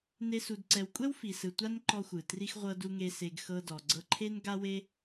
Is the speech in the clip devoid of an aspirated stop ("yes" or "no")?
no